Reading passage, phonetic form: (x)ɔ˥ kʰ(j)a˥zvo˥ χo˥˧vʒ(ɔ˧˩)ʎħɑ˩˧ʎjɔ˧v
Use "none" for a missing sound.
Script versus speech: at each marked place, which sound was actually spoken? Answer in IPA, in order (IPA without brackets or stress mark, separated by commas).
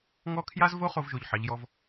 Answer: ŋ, j, o˧˩